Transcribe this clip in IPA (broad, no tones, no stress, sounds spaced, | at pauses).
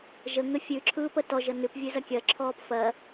ʒ ə ŋ ə fʲ ʉ ǁʰ ɯː p ə t ɔ ʒ ə n ʉ p vʲ ʉ z ɐ kʲ ɜ ǁʰ ɔː p f ɜ